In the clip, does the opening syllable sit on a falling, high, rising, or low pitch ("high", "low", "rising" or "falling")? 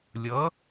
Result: rising